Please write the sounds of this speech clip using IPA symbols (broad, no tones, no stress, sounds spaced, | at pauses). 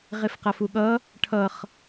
ʁ e f q a f u ɠ ʌ | ʈʰ ʌ χ